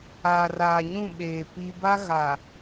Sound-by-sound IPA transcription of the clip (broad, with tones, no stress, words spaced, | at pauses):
aː˨raː˨ ɲũ˦˨ɓeː˨ pi˦ ba˦ɣa˨